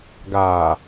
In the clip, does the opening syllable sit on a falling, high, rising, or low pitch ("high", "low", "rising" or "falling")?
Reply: low